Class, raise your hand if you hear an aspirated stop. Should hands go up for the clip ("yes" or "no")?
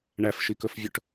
no